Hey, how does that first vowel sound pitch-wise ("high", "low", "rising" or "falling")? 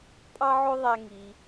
high